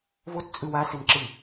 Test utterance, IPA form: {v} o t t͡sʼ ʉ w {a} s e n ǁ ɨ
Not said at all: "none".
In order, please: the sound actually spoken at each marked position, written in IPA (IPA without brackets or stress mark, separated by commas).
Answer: v, a